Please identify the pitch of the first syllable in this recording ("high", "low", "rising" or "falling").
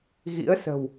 rising